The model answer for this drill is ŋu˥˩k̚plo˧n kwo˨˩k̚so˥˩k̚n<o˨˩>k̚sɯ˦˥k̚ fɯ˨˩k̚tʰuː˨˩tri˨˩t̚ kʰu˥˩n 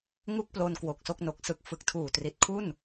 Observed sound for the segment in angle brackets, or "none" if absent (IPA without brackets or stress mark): o˨˩